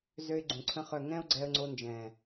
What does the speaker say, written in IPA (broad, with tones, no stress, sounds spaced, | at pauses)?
z ø˦ ɪ̯ ɡ͡ǀ ũ˨ ǀʰ ə̃˦ χ œ˦˨ ŋ ɛ̃˦ ʊ̯ ɡ͡ǀ ɛ˧ ə̯ ŋ͡ǀ o˧ n d͡ʒ ɛ̃˨